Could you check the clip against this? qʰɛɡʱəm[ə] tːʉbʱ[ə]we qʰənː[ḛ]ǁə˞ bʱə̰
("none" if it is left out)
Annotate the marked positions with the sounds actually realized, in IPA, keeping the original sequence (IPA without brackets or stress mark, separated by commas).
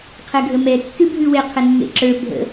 ɛ, ʉ, ḛ